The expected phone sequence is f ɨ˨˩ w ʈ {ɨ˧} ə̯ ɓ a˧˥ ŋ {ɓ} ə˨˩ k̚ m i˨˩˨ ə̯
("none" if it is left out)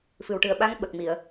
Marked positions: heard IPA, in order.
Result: ɨ˨˩, ɓ

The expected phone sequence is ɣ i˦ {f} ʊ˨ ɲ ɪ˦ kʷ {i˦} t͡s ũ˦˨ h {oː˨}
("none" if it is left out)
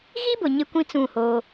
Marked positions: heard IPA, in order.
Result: b, ĩ˦, oː˦

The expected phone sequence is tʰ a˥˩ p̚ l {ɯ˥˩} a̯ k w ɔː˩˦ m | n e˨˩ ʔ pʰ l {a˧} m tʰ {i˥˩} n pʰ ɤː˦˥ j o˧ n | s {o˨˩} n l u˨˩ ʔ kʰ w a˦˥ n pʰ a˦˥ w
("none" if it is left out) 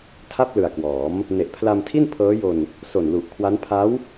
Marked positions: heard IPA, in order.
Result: ɯ˨˩, a˧, i˥˩, o˨˩

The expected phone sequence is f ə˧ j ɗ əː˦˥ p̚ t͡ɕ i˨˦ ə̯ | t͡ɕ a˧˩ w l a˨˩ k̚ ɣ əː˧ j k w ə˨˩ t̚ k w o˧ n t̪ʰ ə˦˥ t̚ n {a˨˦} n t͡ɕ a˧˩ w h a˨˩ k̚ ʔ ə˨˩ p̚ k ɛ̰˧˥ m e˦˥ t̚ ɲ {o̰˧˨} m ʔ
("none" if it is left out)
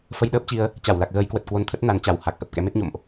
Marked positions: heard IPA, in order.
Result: a˨˦, o̰˧˨

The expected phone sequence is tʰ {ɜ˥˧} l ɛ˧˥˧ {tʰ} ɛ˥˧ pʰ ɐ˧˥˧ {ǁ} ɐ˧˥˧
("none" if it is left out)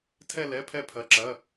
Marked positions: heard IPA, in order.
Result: ɛ˥˧, pʰ, ǁ

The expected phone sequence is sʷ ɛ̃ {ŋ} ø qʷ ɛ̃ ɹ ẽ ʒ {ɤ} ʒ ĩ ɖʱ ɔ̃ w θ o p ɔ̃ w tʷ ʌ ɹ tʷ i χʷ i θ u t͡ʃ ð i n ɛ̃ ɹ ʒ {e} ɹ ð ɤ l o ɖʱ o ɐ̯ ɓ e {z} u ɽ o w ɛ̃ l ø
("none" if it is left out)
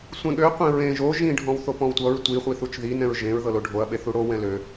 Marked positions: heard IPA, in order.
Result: ɠ, o, ẽ, θ

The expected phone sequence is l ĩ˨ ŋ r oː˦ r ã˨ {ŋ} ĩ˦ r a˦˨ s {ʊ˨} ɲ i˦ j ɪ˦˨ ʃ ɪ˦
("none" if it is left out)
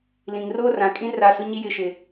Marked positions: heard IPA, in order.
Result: kʼ, ʊ˦

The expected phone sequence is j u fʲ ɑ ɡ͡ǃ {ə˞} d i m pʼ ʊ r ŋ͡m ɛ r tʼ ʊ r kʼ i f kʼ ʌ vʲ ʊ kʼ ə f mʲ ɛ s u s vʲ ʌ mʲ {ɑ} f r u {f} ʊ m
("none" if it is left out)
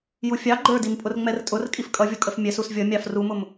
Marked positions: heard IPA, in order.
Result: ə˞, ɑ, m

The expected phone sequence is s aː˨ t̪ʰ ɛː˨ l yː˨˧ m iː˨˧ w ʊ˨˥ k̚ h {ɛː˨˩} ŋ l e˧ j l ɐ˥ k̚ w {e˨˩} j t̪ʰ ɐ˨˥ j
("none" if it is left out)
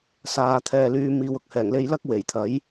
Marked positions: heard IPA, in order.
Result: ɛː˨˩, e˨˩

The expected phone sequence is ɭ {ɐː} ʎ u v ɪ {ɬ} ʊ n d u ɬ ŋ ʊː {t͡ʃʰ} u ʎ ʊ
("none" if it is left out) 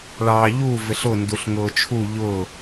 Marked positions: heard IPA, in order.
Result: ɑː, ɬ, t͡ʃʰ

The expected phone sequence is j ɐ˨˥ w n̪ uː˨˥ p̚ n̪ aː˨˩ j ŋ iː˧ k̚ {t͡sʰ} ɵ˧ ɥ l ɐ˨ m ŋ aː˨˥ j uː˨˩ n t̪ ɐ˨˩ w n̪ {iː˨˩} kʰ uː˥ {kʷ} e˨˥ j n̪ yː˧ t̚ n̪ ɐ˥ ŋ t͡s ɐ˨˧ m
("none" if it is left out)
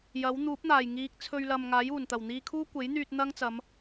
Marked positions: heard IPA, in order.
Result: t͡sʰ, iː˧, kʷ

